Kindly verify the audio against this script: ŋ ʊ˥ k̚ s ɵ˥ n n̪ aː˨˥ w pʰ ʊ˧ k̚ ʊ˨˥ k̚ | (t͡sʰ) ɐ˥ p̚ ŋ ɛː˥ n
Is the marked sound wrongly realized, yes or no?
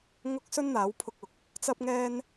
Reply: yes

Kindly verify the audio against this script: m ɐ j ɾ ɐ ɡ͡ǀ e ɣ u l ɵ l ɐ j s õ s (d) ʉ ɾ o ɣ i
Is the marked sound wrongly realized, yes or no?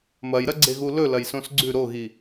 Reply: yes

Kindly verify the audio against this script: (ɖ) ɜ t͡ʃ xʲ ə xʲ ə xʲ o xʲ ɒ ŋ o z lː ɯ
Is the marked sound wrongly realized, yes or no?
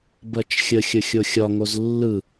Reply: yes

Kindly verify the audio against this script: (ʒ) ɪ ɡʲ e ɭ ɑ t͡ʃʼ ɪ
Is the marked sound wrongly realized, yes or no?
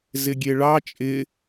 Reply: yes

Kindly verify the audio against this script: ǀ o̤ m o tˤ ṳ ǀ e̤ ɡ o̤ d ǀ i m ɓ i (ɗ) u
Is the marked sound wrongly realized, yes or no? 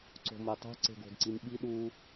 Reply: no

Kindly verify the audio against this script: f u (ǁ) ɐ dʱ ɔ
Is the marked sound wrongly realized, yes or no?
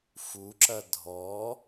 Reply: no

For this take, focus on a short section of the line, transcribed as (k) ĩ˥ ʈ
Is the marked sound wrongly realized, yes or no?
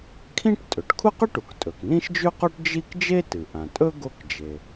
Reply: yes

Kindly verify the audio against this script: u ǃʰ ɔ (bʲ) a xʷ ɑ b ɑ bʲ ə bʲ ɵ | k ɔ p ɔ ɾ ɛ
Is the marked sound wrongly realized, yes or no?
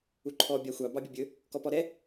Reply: no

